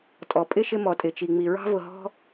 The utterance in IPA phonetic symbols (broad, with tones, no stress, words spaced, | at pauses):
tʼɔ˩ pʼɪ˥ʃɪ˦ mɔ˩tʼɪ˩t͡ʃi˩ ŋ͡mi˩ɹɑ̤˥vʊ˨ɦɔ̤˥